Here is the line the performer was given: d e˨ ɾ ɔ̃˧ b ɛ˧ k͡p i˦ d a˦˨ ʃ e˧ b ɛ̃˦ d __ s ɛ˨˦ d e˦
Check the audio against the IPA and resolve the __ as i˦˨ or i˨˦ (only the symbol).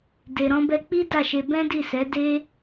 i˦˨